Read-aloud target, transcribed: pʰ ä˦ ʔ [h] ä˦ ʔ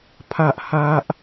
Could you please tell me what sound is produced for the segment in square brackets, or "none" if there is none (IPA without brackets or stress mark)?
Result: h